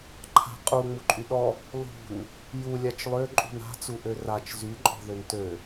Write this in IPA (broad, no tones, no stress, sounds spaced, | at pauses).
ǃʰ a̤ qʼ u ŋ͡m u ǃʼ y ɗ ɔ | lˠ ṳ n | j u lʲ a t͡ʃ lˠ ø ǃʼ ṳ n a̤ t͡s u ʔ ø r a t͡ʃ z y ǃʼ ɔ̤ ð ø n t ø